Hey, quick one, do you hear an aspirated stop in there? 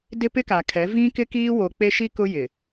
yes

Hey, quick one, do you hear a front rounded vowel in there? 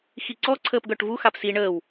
yes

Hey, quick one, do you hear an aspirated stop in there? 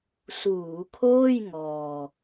yes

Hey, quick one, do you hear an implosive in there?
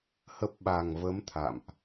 yes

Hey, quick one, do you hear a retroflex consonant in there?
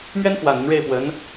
yes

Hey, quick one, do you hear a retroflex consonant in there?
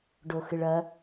yes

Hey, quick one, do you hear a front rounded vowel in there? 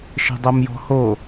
no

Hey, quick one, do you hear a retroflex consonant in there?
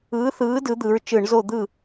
yes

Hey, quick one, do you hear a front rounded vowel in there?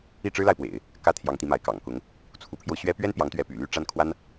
yes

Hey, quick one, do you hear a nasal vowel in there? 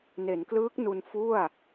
no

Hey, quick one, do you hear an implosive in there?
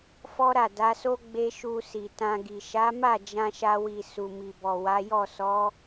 no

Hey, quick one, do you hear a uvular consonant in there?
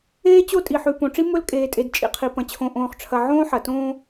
yes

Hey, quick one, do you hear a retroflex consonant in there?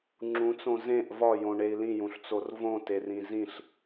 yes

